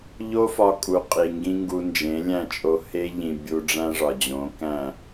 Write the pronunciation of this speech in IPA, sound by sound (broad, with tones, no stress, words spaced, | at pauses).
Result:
ʎo˦fɒ˧kʼu˨ qʼi˨ŋɡĩ˦ŋɡu˧ nd͡ʒẽ˨˦lʲæ̃˦˨t͡ʃʼo˧ he˦ʎĩ˨ bʲu˧ɖ͡ʐæ̃˦ʐɒ˨ d͡ʑõ˨˦kæ̃˦˨